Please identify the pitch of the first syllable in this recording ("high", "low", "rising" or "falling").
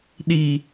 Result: low